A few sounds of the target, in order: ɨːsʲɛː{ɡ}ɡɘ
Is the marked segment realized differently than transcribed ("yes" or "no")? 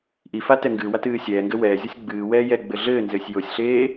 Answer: yes